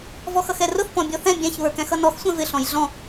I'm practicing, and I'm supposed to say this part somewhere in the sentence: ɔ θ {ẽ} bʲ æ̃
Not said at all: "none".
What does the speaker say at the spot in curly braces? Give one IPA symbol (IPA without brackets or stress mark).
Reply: ɛ̃